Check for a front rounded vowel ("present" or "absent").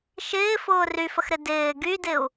present